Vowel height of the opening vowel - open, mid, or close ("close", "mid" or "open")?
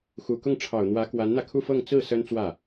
close